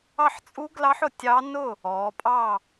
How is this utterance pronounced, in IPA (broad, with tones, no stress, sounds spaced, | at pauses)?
ɑ˥˨ ħ t͡sʼ u˦˥ ɡ l ɑ˦˥ ħ ʊ˩˧ tʲ ɑ˦˥ n ʊ˥˨ | ɔ˩˧ pʼ ɑ˥˨